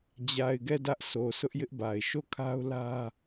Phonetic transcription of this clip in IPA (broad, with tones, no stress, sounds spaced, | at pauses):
d͡ʑ a˨ ɪ̯ ɡ ɛ˦˨ d ä˦ ʔ s o˨ s ʊ˦ ʔ j ɪ˦ ʔ b a˨ ɪ̯ ʃ o˦˨ kʰ a˦ ʊ̯ l ä˦